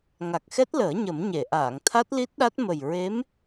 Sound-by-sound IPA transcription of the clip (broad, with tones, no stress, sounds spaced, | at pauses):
ŋ a˨˩ k̚ x ɛ˦˥ t̚ l əː˨˩˦ ɲ ə˨˩˦ m ɲ e˨˩˨ ʔ aː˨˩˨ ŋ t̪ʰ a˦˥ t̚ l i˦˥ t̚ ɗ a˦˥ t̚ m ə˨˩ j ɹ e˧˥ m